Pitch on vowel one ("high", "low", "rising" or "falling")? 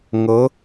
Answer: rising